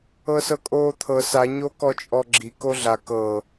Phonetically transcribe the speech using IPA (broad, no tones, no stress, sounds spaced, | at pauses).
ɤ s ɤ kʼ oː t̪ʰ ɤ s a ɲ o k ɔ t͡ʃʼ ɔ ɡ͡ǁ i k o ɮ a k ɤ